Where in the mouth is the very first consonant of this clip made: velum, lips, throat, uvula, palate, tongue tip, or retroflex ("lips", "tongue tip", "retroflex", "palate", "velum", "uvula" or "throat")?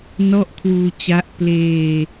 tongue tip